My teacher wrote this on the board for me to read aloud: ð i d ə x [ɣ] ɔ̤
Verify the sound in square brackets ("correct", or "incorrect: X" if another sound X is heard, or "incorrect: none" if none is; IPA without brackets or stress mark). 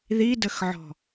incorrect: ʕ